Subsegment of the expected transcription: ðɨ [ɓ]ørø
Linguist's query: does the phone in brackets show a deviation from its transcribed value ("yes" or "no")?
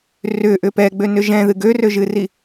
yes